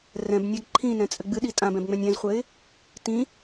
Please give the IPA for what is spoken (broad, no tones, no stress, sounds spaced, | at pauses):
r ɛ̃ b nʲ a ɡ ǃʰ ĩ n ɛ̃ t͡sʼ ɘ ɡ͡b ɨ ɗ i tʼ ã b ɛ̃ b ŋ͡m ɛ̃ nʲ ɛ̃ z χʷ ɘ ɪ̯ | t ĩ